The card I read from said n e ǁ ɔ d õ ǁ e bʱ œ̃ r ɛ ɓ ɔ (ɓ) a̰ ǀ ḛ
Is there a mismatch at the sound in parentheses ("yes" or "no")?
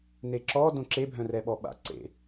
no